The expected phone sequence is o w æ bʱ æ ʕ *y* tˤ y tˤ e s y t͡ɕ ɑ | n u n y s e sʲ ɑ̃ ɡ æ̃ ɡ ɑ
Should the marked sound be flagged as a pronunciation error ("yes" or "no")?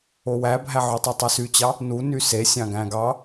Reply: no